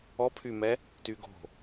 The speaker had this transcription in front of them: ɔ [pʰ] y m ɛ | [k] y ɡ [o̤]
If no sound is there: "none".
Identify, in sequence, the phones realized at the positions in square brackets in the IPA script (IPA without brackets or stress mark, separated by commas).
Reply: pʰ, t, o̤